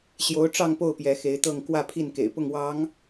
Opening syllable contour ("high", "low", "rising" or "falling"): rising